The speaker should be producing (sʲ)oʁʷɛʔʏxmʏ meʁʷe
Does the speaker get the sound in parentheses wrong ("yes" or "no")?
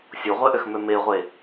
no